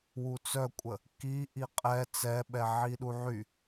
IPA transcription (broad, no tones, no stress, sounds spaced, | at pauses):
w u t͡s œ kʷʼ ə | k i ʔ i qʼ ɛ t͡s ɛ ɓ ɛ ʕ i ɗ u ʕ y